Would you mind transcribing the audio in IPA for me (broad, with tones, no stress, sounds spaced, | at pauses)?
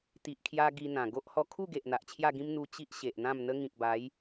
t̪ i˨ ʔ kʰ j a˧ ɡ i˧ n̪ ã˨˩ ɡ o˦ ʔ h ɔ˧ kʰ u˥˧ ɡ e˨ ʔ n̪ a˨ ʔ t͡ɕʰ j a˥˧ ɡ ĩ˦ m n̪ u˧ t͡ɕ i˦ ʔ ɕ e˨ ʔ n̪ ã˥˧ m n̪ ə˦ ŋ ĩ˨ k̚ b a˨˦ j